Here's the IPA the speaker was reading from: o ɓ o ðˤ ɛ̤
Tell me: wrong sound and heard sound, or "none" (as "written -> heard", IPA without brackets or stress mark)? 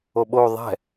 none